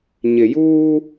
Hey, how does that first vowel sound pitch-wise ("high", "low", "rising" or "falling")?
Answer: low